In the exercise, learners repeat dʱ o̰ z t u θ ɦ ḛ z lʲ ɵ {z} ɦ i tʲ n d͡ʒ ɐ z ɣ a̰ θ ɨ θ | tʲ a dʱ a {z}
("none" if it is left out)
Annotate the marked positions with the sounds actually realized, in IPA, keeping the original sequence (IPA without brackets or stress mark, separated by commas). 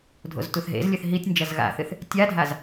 θ, z